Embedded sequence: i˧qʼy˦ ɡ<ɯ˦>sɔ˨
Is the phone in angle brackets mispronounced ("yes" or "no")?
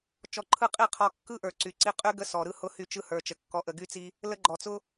yes